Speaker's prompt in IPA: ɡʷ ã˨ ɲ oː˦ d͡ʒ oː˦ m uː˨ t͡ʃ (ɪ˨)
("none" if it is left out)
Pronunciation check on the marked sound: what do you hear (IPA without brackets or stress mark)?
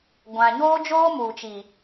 i˨